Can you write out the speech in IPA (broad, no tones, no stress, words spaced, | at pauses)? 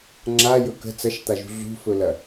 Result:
ŋ͡ǁajɵ kə̤ t͡sɐʃt̪aʒṳ ɮṳfɵlɐ